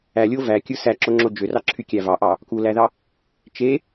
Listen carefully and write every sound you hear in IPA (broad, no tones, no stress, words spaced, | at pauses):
ælʲo vækʲɯ sæǁoŋ͡ǁo d͡ʒørɑǁʰykʲæ vɑʔɑ | kulæðɑ | t͡ʃe